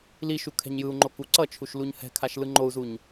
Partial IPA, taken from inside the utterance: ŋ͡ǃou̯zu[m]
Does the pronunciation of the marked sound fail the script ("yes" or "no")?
yes